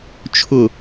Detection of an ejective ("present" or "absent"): absent